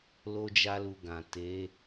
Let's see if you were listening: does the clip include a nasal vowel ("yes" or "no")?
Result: yes